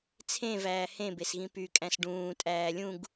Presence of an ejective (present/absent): present